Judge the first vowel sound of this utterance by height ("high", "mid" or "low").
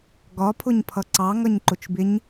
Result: low